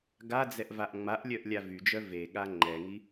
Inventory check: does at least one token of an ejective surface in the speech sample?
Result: no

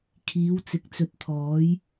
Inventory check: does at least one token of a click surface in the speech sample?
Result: no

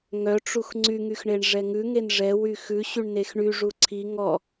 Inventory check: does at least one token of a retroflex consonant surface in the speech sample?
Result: yes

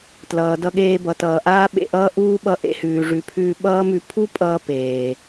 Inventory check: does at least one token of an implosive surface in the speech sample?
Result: yes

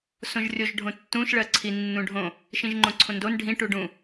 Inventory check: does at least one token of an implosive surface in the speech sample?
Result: no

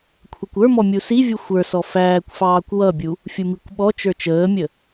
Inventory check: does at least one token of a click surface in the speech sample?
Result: no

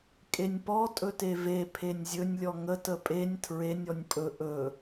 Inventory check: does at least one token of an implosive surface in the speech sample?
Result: no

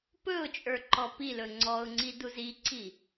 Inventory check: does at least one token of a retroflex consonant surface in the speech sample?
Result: no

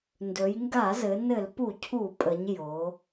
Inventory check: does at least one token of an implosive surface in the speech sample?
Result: no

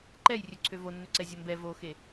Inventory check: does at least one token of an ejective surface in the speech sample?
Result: no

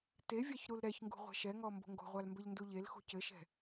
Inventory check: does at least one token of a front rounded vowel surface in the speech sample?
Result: no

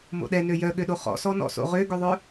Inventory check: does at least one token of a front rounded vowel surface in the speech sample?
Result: yes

